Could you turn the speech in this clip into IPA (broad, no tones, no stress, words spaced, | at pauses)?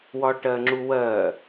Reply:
wɒʈɜŋ͡ǁuwɜ